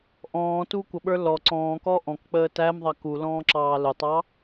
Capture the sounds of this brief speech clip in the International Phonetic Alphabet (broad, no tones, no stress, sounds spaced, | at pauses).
ʔ ɔ̃ː t u kʷ ʌ ɓ ə˞ l ɔ ǀ ɔ̃ː k ɔ ʔ ɔ̃ k k͡p əː t æ m ðˤ ɑ k u l ɔ̃ː ǁ ɑː l ʊ tˤ ɑ